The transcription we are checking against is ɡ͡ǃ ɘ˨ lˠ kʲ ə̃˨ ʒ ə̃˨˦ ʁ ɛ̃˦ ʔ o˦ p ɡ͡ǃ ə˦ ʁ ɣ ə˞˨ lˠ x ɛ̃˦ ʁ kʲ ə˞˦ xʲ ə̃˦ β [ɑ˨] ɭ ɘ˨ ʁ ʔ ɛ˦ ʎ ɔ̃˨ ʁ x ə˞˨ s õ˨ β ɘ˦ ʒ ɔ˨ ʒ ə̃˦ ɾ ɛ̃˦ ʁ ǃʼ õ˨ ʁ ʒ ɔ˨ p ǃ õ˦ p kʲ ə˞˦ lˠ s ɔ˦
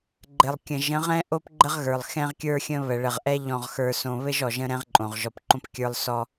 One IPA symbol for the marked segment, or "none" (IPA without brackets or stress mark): ə˨